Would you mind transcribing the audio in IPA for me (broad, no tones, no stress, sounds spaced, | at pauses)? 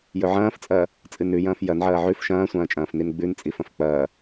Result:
j ɵ ʕ ɐ̃ː f t͡sʼ ɐː | t͡sʼ ɨ n ʉ j ɐ̃ː f j ɐ n ʕ ɐː ʕ ʉ f ʃ ɐ̃ː sʷ ɐ̃ː t͡ʃʼ ɐ̃ː f n i n ɡ͡b ʉ n t͡sʼ i f ɐ̃ f k͡p ɐː